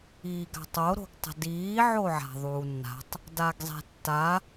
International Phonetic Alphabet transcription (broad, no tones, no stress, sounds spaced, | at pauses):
iː ɡ a̤ tˤ o ɾ o̤ ɡ tˤ ə̤ d iː ʕ o ʕ a̤ ðˤ uː nː a̤ tˤ | d a ɡ zˤ e̤ tː a